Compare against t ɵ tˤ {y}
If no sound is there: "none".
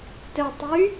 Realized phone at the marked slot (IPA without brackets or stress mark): y